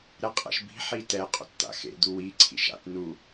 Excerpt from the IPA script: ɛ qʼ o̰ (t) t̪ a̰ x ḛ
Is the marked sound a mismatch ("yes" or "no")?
no